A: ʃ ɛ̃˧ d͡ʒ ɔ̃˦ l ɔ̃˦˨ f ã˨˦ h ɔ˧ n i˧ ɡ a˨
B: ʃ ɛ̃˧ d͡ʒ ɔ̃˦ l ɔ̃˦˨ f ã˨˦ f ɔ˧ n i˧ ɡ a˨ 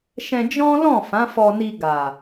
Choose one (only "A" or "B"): B